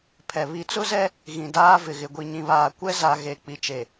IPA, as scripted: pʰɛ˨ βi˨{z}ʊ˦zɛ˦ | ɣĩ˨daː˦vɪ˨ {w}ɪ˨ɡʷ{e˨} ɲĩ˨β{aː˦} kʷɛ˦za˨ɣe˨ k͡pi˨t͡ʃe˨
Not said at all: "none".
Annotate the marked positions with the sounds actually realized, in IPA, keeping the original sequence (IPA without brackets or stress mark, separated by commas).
t͡s, ɣ, i˨, aː˨